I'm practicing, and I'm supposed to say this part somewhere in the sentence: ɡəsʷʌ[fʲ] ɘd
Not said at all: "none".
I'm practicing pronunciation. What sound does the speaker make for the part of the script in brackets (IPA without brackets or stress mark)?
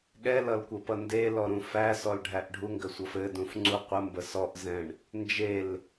f